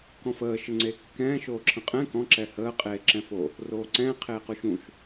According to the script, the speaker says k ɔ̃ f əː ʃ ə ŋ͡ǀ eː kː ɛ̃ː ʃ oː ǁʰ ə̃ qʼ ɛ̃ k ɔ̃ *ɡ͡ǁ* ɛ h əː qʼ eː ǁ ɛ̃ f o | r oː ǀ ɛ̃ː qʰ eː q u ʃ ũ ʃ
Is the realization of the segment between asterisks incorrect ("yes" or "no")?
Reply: yes